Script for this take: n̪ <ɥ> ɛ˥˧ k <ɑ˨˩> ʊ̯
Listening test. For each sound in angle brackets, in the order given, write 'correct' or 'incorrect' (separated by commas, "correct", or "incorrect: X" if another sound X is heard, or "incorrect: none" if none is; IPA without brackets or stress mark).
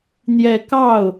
incorrect: j, incorrect: ɑ˥˩